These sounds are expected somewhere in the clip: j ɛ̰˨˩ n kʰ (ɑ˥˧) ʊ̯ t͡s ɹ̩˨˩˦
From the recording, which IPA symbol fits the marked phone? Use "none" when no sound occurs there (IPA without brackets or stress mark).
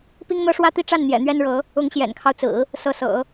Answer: ɑ˦